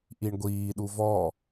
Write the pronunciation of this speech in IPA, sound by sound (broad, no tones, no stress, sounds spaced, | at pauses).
ʔ i ɳ ɡʷ iː ɗ u v ɔ